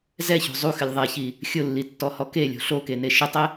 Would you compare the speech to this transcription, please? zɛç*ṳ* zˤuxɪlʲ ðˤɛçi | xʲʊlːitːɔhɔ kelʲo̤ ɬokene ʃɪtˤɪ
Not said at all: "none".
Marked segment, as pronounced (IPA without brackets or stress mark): o̤